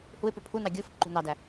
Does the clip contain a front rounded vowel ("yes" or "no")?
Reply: yes